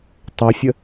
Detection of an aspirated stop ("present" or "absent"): absent